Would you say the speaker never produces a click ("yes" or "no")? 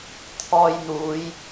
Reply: yes